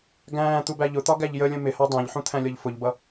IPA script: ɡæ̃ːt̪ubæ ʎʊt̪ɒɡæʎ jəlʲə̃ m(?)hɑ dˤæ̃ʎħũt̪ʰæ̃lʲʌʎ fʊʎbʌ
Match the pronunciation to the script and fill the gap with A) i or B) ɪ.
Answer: B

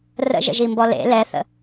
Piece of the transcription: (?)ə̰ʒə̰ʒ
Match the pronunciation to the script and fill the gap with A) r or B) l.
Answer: A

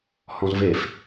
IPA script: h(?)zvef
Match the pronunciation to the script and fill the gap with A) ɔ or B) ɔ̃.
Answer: B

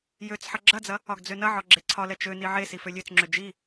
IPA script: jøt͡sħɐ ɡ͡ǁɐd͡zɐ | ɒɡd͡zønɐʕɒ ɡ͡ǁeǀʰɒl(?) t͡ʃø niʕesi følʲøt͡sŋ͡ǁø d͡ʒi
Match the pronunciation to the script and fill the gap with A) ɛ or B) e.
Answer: A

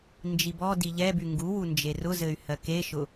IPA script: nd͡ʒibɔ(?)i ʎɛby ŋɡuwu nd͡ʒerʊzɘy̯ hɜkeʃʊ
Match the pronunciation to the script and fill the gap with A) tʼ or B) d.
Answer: B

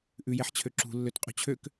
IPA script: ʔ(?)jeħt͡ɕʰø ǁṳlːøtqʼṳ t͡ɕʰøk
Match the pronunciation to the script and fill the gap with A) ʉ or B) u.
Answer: A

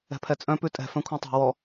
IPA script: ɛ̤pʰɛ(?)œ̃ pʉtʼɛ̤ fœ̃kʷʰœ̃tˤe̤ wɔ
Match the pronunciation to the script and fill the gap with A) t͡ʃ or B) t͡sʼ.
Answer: B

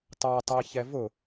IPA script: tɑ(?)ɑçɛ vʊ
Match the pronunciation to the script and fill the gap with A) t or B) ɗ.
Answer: A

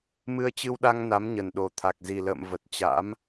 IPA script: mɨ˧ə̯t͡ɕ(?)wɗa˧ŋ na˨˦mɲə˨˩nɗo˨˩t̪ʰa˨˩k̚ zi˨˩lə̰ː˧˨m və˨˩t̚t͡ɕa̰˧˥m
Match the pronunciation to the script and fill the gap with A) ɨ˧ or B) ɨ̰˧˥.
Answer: A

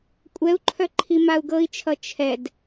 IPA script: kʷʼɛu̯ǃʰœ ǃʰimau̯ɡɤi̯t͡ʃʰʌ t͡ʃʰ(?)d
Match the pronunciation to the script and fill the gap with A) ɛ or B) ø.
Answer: A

